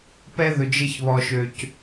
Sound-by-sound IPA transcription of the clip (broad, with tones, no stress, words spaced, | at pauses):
pɛ˦ðɵ˨ d͡ʒɪ˦çβɔ˨ʃø˨c